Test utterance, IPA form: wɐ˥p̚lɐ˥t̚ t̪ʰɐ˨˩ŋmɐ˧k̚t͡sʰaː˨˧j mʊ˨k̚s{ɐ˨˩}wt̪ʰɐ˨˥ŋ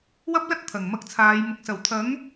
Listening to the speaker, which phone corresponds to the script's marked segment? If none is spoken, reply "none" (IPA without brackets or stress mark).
ɐ˨˩